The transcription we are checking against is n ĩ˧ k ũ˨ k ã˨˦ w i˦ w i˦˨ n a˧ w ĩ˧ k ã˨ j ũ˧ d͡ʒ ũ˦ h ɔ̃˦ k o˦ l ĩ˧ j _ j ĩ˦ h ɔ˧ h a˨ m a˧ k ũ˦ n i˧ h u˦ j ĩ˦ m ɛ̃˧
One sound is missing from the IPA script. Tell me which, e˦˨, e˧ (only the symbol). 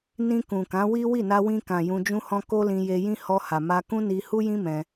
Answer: e˧